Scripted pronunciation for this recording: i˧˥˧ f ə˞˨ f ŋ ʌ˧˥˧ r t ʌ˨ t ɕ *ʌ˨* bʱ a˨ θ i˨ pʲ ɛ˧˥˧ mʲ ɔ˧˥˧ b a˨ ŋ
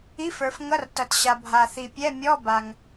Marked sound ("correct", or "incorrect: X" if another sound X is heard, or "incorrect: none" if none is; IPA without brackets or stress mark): incorrect: a˨